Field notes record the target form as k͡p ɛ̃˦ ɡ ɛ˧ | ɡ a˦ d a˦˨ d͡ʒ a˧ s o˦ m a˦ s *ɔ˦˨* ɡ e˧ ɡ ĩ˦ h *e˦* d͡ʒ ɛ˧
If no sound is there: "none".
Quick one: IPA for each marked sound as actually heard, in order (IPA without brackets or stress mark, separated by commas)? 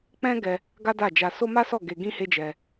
ɔ˦˨, e˦